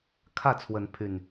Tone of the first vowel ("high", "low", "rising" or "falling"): falling